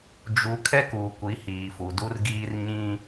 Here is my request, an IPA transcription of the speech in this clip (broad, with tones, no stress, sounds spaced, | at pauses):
d͡ʒ u˨ kʰ ɛ˦ k uː˨ kʷ i˨˦ h iː˨ f u˨ d u˦ r ɡ iː˦ r ɲ ĩ˦